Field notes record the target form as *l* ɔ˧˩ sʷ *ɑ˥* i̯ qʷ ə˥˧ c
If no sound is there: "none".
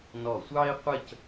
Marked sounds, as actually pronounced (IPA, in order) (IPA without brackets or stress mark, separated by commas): n, ɑ˥